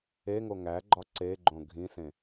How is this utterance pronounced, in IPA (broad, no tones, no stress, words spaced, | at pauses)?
eŋo ŋæɡ͡ǃɒ ǀeɡ͡ǃõ ɡʱĩsẽ